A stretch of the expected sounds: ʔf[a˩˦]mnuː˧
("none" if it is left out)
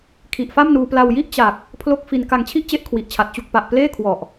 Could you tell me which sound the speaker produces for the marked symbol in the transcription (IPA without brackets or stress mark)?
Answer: a˥˩